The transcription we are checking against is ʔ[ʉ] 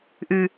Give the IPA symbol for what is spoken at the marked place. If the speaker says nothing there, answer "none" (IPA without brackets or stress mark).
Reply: ʉ